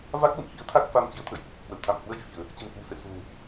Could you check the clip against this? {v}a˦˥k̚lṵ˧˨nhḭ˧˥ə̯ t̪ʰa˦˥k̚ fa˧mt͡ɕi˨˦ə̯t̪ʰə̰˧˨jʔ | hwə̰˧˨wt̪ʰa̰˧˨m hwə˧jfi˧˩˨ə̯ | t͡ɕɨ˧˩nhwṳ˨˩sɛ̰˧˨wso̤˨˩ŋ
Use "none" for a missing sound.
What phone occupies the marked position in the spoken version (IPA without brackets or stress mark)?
v